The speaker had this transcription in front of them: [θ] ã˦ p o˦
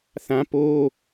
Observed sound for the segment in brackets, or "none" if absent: θ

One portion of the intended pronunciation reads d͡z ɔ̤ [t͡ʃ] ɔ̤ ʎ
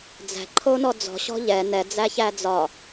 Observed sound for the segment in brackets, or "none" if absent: ɕ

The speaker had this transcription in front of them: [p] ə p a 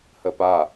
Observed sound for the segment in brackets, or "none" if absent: h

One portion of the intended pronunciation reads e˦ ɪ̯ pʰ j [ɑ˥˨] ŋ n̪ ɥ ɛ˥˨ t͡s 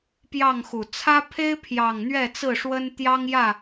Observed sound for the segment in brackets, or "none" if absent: ɑ˨˩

